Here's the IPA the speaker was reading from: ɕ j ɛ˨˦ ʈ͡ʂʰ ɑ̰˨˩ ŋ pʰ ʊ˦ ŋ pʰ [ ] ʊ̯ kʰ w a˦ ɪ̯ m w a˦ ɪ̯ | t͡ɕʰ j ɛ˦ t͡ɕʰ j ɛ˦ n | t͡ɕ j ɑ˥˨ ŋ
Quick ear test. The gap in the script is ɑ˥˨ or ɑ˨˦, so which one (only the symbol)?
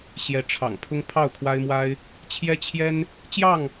ɑ˥˨